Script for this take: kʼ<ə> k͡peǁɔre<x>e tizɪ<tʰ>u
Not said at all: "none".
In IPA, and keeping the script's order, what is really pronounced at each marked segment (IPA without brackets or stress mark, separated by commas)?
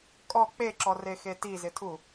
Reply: ɔ, x, tʰ